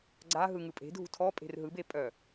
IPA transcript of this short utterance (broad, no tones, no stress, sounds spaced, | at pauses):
ɡ͡ǀ a ɦ ɯ ŋ ɯ pʼ e̤ dʱ ṳ tʰ ɔ pʼ e̤ r ɦ ɯ b e pʼ œ